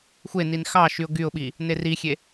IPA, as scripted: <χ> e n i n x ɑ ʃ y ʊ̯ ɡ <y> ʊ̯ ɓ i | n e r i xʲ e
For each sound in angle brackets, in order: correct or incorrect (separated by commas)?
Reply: incorrect, correct